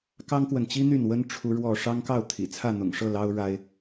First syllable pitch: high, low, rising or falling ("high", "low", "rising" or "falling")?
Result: high